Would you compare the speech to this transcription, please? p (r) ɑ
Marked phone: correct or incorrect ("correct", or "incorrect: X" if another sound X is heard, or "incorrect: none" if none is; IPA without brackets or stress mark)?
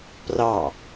correct